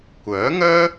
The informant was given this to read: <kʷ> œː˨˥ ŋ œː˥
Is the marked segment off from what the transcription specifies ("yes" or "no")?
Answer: no